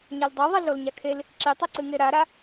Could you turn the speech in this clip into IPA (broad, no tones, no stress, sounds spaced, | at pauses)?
ɲ a l dˤ u ðˤ i ɮ o l ɲ a kʰ e l | ǁ i tˤ i ǀ ɨ ŋ e ɾ a ɾ a